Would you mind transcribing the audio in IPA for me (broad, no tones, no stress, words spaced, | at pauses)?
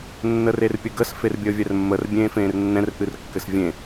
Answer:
nːərerpʲɘɡəs ferbʲəːvʲɛrmːər bʲẽːfẽːrnːɛ̃r ʔɨrkːɘsvʲẽ